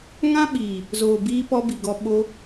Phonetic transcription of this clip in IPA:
ŋ ã˦ ɓ iː˨ | z oː˨ b iː˧ p ɔ˧ b i˨ ɡ ɔ˧ ɓ o˧

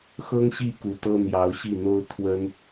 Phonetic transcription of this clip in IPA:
x ɤ˥ ŋ ɕ i˥˩ k u˧˥ t̪ ɤ˥ n̪ j ɑ˧˥ ʊ̯ ɕ i˥˩ n̪ o˥ ʊ̯ t̪ʰ w ə˥ n

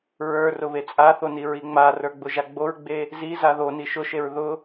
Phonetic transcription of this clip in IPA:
ɹ ə˞ r ʊ β e t͡sʼ a θ o n i ɹ i ŋ͡m a r ə˞ ɡ͡b ʊ ʒ a ɡ͡b o ɹ ɡ͡b e | z i z a ð o n i ʃ ʊ ʃ e ɹ ð ʊ

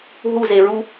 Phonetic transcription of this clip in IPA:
ɦ u z e ɹ u

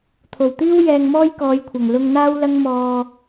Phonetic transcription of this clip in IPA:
t̪ʰ o˨˩ w t̪ iː˥ w j ɛː˧ ŋ m ɔː˥ j k ɔː˨˧ j kʷʰ ɐ˨˩ ŋ l ʊ˧ ŋ n̪ aː˥ w l ɐ˥ ŋ m ɔː˧

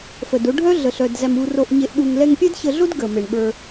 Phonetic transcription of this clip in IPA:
f ə˨ d o˧ ɖʱ œ˦ ɮ ə˨ ɬ œ˨ d z æ˨ m u˨ r o˨ ʔ ɲ e˨ ʔ ɗ u˨ ŋ l ɛ˧ ŋ pʲ ɛ˦ d ç ə˧ ɮ o˦ d ɡ ə˨ m e˨ ɳ ɓ ə˞˧

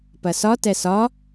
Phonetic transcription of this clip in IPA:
p ɐ s ɒ t ɛ s ɒ

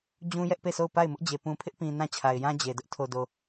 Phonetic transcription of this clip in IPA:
d͡ʑ ũ˦ j ɛ˦ ʔ p e˦˨ sʰ o˦˨ ʊ̯ p a˦˨ ɪ̯ m ʊ˦ ʔ d͡ʑ e˨ p ũ˨ pʰ ɪ˦ ʔ p ĩ˨ n ã˦˨ t͡ɕʰ a˨ ɪ̯ j ã˦ d͡ʑ e˨ d ʊ˦ ʔ tʰ o˨ d o˨

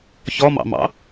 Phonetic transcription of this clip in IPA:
ç ɔ m ɑ̰ m ɑ̰

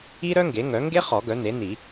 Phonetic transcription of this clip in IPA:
i˥ ɾ œ˥ ŋ ɡ e˩˥ ŋ œ˩˥ ŋ ɡ e˥ χ ɔ˨˩˦ ɡ œ˩˥ n e˩˥ n i˨˩˦

